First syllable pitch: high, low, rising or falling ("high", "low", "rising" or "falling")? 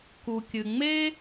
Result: low